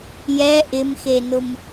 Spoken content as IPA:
j ɛ ʔ ɪ m x e n ʊ m

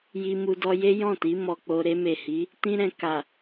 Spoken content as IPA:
j i˧ m u˧ d ɔ˧ j e˦ j ɔ̃˦˨ t i˨˦ m ɔ˧ k͡p o˧ ɾ e˧ m e˨ h i˨˦ | t ĩ˦ ɾ ɛ̃˧ k a˨

